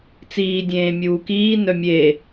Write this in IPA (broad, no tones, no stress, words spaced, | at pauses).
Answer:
t͡siːdʲẽː mʲuːkiːnœ mʲe